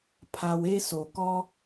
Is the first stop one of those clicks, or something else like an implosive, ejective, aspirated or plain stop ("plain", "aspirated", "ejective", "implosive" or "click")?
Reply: aspirated